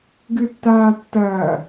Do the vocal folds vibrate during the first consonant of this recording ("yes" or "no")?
yes